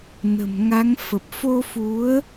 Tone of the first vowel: low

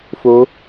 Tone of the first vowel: rising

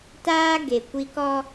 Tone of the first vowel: high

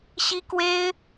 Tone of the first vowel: high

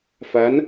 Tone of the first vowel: rising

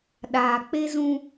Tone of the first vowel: low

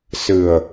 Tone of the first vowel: low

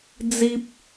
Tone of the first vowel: high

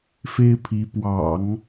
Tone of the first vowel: high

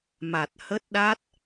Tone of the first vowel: low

